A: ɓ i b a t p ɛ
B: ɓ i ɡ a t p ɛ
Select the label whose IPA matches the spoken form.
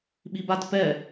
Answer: A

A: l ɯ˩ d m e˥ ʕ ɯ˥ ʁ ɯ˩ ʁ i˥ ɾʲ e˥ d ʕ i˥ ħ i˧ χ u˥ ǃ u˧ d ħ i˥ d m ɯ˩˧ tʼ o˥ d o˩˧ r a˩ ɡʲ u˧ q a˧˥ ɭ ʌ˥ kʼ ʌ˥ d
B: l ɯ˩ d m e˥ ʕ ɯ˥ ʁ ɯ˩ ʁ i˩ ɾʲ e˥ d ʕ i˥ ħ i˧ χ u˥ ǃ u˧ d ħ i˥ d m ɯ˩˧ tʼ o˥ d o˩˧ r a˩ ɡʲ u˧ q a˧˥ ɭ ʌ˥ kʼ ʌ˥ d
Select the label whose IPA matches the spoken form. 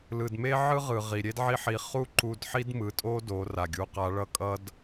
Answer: B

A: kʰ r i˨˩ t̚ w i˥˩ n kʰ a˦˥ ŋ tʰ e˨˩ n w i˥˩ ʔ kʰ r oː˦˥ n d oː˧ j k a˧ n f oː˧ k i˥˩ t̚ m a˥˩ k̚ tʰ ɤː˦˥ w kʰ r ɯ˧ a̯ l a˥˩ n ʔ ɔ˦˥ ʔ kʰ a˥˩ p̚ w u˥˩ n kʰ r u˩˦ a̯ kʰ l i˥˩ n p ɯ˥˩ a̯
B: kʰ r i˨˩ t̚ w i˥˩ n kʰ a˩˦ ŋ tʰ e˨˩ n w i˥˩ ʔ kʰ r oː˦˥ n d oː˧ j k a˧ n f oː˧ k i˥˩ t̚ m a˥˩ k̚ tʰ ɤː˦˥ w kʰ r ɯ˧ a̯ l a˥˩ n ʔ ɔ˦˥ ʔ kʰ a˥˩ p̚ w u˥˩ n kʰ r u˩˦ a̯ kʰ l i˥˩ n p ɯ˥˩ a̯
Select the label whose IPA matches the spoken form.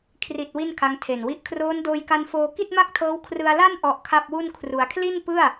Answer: A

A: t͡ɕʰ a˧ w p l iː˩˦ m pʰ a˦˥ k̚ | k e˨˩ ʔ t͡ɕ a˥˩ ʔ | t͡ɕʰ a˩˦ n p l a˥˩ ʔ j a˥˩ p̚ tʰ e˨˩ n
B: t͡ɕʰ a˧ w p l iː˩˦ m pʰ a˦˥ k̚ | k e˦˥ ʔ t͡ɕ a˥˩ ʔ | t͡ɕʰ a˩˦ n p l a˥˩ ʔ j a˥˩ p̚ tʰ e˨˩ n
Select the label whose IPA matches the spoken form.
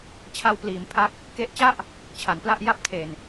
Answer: B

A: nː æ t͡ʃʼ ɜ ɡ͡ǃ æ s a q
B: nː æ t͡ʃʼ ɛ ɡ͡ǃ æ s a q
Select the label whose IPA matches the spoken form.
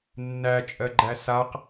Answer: A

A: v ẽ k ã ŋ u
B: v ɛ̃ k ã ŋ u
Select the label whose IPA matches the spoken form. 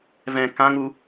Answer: B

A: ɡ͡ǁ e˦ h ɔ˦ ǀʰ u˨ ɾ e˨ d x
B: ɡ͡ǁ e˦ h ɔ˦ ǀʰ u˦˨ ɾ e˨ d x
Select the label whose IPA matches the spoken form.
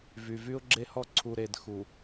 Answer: A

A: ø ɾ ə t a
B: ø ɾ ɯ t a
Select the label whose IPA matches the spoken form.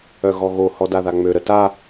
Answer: A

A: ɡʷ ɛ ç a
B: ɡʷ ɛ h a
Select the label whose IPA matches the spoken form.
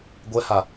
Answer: B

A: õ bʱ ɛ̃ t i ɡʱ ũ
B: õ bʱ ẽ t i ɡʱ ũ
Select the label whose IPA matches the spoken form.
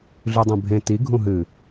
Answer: B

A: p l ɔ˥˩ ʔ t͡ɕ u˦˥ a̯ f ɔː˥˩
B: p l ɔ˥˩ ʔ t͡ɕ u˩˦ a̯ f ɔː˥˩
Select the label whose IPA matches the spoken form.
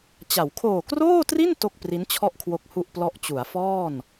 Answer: B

